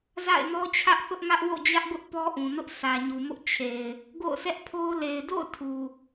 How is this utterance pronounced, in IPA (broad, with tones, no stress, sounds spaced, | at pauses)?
z a̰˦˨ ɪ̯ n ɔ˦ t͡ɕʰ ä˦ ʔ θ ʊ˦ ʔ ŋ ä˦ ʔ w o̰˦˨ d͡ʑ ä˦ ʔ ɡ ʊ˦ ʔ p ɔ˦ ʔ ũ˨ n ʊ˦ ʔ s ä˨ ɲ u˨ m ʊ˦ ʔ t͡ɕʰ e˨ ɪ̯ | ɡ o̰˦˨ ʊ̯ sʰ ɛ˦ ʔ pʰ o˦ ʊ̯ l e˨ ɪ̯ d o̰˦˨ ʊ̯ tʰ u˨